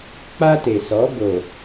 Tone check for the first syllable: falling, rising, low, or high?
high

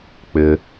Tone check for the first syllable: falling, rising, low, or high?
high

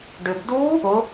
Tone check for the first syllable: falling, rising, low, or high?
low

